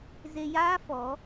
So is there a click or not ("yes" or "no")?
no